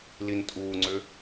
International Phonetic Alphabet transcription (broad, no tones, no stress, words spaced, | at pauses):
lintʼuːŋ͡ǀʏ